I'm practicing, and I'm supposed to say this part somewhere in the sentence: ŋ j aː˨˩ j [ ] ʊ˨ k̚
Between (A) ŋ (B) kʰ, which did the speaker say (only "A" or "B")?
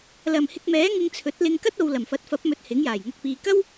A